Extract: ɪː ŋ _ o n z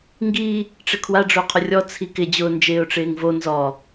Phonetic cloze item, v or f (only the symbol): v